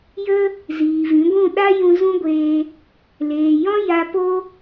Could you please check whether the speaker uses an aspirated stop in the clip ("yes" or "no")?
no